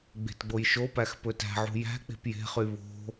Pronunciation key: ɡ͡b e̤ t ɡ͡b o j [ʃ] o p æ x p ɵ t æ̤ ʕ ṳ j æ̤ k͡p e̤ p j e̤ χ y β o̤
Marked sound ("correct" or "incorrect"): correct